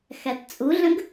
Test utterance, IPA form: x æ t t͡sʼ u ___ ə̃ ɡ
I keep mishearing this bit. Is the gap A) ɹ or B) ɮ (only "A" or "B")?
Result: B